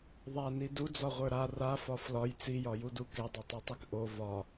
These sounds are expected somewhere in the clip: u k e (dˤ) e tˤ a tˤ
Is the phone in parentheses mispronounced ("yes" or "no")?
no